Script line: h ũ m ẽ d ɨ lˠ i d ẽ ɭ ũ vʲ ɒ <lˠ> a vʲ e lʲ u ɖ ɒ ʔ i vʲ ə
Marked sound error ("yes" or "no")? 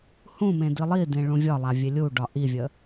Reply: no